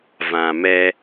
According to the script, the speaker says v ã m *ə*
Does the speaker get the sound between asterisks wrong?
yes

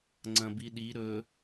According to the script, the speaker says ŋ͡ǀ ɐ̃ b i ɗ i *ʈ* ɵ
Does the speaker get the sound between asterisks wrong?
yes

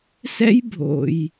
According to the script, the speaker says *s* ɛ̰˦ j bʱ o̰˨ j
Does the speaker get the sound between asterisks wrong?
no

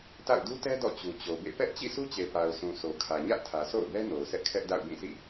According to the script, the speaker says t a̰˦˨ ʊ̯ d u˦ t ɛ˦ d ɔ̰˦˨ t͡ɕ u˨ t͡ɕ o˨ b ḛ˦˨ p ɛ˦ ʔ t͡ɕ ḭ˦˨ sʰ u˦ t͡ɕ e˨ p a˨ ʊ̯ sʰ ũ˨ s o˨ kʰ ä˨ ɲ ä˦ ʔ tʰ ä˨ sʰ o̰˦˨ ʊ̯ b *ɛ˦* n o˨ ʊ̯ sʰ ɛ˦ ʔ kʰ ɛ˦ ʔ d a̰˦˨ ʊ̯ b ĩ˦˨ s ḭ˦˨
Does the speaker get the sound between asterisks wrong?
no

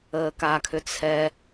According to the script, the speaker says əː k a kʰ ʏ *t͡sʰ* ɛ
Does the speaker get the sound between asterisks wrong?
no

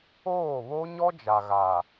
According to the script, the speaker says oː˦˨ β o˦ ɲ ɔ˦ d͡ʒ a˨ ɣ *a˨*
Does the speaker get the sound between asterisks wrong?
no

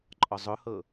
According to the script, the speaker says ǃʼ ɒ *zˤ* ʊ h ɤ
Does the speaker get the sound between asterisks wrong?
no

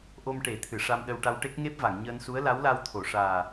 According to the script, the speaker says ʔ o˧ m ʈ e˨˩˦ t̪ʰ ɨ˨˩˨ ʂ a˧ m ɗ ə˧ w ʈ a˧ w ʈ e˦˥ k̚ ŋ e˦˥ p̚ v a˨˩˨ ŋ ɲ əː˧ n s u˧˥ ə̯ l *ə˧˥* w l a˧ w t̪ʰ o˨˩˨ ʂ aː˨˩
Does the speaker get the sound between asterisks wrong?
yes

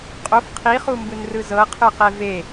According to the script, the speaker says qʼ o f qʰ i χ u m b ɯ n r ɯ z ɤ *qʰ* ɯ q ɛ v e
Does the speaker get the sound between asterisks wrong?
no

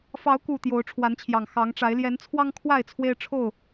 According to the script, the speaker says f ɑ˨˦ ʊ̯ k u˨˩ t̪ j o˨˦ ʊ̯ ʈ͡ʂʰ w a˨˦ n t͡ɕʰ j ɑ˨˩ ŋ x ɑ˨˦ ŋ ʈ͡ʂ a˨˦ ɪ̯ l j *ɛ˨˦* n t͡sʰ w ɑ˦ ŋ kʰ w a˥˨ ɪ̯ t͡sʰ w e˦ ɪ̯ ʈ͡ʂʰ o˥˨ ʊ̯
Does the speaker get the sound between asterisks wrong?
no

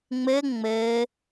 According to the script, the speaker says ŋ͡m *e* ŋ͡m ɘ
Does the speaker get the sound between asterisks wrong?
yes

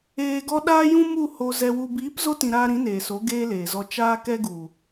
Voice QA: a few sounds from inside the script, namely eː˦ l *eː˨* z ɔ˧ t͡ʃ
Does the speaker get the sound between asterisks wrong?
no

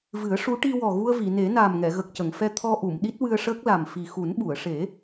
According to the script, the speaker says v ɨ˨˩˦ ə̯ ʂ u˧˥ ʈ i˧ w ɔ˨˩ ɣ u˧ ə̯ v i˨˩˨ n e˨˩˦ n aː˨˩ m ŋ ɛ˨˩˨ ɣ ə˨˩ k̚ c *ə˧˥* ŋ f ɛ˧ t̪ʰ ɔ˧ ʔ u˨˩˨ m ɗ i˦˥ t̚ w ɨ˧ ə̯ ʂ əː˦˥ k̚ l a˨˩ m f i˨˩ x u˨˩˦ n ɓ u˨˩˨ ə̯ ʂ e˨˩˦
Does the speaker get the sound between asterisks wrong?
yes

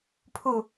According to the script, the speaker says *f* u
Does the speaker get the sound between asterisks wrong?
yes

